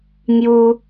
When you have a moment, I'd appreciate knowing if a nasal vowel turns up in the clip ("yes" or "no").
no